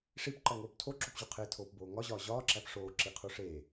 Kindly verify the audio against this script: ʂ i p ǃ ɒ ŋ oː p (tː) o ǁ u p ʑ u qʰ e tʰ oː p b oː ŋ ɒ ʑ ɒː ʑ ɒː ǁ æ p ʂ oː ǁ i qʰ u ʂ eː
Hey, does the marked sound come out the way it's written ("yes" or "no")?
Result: no